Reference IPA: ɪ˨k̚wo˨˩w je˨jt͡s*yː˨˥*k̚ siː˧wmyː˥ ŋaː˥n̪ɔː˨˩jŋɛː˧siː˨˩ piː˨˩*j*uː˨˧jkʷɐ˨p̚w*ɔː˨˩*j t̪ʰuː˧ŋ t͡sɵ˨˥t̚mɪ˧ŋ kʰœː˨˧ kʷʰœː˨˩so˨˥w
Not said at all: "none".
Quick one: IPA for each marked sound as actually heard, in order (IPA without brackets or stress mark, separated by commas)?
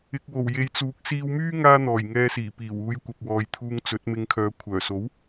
uː˨˥, w, ɔː˨